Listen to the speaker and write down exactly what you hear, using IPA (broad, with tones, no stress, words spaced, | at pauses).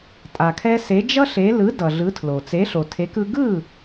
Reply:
tʼa˩kʰɛ˧ se˩˥d͡ʒʌ˥ɬe˩˥ lɯ˩˥ dʌ˩ɮɯ˩˥tʰlo˩ t͡se˩˥ɬo˩tʰe˩˥kɯ˧ ɡɯ˥˩